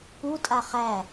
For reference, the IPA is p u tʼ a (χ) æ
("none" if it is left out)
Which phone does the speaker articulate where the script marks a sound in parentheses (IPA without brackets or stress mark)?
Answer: χ